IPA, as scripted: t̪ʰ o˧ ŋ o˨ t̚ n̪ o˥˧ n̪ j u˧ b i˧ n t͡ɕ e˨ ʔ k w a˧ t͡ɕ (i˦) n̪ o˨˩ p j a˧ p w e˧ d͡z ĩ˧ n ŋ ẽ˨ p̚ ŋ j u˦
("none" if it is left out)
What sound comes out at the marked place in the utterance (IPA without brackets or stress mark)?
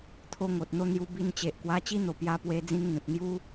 i˦